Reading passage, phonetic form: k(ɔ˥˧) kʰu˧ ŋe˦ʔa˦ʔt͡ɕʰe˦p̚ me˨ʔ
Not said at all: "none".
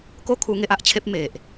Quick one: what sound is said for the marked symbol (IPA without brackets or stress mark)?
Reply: o˥˧